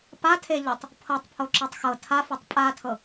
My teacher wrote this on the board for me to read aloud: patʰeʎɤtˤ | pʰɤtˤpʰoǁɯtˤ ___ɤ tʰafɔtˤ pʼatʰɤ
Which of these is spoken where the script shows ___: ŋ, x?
x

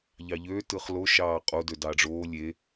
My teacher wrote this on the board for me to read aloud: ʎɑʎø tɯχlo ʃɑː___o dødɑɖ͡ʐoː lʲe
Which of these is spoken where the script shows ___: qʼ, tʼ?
qʼ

